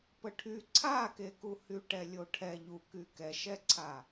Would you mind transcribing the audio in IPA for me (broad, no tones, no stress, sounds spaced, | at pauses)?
p ə ʈʰ y ǀʰ a k e k u h y ʈ ɛ lʲ o ʈʰ ɛ ʎ u k y k ɛ ʃ ɛ ǀʰ a